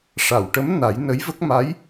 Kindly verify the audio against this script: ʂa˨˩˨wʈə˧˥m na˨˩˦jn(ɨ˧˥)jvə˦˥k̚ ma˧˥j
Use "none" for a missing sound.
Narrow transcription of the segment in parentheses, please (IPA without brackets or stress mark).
ə˧˥